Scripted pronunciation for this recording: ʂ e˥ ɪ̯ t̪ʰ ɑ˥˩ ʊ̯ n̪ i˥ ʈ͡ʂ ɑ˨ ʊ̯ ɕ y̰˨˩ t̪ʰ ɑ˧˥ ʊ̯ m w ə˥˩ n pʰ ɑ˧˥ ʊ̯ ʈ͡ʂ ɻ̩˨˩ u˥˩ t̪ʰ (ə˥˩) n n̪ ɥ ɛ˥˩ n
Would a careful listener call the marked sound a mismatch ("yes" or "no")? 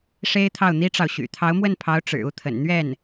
yes